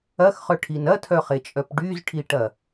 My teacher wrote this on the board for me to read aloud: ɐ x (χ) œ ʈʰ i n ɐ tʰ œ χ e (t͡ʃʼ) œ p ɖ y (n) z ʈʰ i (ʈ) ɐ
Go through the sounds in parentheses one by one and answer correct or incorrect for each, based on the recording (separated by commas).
correct, correct, incorrect, correct